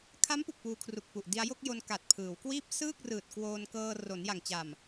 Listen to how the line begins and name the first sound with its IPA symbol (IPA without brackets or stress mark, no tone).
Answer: kʰ